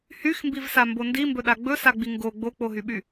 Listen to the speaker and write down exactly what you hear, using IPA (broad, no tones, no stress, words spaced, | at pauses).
hyxmbivsambo ndimbɵɗa ɡ͡bɵsaɡ͡bi ŋɡo ɡ͡bok͡poɦyɓy